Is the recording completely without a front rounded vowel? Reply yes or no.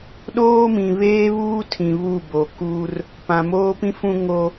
yes